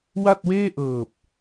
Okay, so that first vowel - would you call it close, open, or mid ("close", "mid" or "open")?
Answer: open